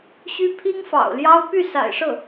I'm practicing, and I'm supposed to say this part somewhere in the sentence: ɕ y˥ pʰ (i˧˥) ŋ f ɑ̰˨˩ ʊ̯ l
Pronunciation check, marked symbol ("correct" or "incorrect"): incorrect